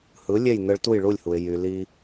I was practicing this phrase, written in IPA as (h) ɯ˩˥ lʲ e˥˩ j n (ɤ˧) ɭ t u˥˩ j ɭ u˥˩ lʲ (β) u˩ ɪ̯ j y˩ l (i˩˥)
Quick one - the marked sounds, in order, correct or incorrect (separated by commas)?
correct, incorrect, incorrect, incorrect